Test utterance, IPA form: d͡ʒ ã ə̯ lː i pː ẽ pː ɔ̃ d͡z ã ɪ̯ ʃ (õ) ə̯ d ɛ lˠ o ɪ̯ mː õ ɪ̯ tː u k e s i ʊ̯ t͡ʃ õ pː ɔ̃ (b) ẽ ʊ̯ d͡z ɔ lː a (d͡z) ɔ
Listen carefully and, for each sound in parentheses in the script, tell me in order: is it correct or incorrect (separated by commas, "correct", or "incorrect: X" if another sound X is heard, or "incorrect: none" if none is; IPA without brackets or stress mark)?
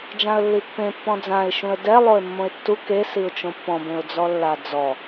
incorrect: ũ, correct, correct